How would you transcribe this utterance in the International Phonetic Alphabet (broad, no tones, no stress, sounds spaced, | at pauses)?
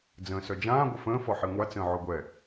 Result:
d͡z ə̃ː s œ d͡ʒ ãː ɡʷ ə f ə̃ː f ɔ ħ i ŋʷ a t͡s ə̃ː ʕ o ɡʷ ɛ